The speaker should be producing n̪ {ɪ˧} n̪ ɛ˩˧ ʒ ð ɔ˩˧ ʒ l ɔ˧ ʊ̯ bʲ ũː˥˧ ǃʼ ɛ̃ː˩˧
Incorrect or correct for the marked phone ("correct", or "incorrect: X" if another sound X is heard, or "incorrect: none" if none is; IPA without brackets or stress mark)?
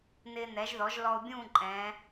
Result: incorrect: ɪː˧